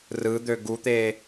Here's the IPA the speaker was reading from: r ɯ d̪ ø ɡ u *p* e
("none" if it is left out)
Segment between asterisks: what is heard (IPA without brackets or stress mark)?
t̪